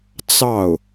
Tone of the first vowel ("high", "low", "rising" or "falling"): falling